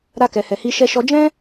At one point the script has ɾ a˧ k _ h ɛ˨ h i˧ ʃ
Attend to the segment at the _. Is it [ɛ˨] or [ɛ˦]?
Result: ɛ˨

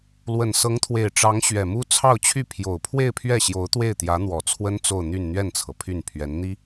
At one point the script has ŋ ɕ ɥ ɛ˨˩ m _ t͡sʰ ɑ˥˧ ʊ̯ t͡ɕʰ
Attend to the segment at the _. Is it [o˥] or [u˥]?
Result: u˥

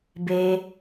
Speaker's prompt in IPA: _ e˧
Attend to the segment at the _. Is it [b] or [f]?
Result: b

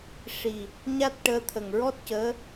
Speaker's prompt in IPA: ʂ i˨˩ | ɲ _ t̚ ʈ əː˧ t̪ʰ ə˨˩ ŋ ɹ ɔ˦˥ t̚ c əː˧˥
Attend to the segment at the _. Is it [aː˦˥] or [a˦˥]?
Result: a˦˥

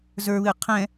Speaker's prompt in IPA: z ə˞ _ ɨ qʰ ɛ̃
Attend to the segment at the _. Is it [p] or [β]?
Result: β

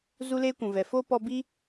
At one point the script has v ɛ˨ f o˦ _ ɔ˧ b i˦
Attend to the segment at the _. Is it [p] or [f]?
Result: p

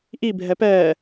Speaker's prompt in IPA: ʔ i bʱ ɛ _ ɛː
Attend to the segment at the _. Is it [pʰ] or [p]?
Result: p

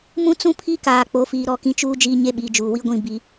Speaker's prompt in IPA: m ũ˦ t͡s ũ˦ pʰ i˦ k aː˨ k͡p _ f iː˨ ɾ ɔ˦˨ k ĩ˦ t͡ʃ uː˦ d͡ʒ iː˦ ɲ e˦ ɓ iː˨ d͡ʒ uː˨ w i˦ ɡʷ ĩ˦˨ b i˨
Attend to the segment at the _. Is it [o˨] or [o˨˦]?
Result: o˨˦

